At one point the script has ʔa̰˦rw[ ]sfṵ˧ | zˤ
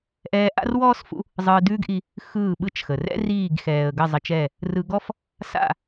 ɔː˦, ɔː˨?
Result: ɔː˦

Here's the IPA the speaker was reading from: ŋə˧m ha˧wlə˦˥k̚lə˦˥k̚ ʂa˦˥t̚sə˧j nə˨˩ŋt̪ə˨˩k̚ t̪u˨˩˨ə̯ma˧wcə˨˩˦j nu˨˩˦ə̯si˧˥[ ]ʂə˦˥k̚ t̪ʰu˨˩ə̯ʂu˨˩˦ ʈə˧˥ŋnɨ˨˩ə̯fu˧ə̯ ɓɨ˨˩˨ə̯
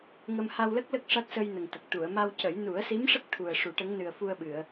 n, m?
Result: m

